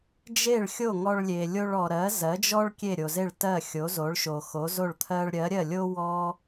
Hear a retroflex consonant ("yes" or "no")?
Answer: yes